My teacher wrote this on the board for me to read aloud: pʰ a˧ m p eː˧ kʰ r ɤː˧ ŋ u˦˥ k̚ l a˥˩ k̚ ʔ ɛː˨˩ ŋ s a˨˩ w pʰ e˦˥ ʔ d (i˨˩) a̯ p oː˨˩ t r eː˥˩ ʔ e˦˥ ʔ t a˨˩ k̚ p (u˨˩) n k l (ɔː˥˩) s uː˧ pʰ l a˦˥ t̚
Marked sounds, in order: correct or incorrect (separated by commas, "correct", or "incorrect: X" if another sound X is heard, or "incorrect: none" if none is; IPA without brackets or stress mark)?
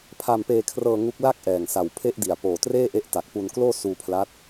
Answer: correct, incorrect: u˧, incorrect: oː˥˩